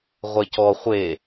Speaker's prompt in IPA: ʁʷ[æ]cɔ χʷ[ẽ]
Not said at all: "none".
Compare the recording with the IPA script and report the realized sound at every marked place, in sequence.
ɛ, e

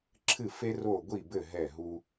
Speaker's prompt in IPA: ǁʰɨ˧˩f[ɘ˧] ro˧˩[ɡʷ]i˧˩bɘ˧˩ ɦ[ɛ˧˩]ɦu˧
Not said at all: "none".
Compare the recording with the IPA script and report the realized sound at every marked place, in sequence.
e˧, ɡʷ, ɛ˧˩

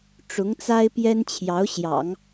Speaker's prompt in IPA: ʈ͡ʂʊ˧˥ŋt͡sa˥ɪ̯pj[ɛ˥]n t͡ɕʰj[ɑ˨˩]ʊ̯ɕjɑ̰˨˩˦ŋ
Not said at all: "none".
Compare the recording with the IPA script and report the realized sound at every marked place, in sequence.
ɛ˥, ɑ˧˥

